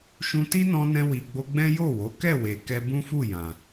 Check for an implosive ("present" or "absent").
absent